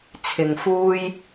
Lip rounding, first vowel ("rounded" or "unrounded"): unrounded